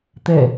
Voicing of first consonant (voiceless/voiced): voiceless